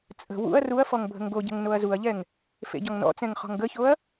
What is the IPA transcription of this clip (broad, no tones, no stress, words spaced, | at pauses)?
t͡sʼə̤ wṵɐ̯ ruɐ̯fɔŋ bʱə̤ŋɡoɟə̤ŋ noɐ̯zuɐ̯ʎɛŋ | fḛɟɔŋnɔ̰t͡sɛ̃ŋ χɔ̤ŋɡəçoɐ̯